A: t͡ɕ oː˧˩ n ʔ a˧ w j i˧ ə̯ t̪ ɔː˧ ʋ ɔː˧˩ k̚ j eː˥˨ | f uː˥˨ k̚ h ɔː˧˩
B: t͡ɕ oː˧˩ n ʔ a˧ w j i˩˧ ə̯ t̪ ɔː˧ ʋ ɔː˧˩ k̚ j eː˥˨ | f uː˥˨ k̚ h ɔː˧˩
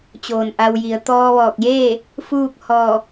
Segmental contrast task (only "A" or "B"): B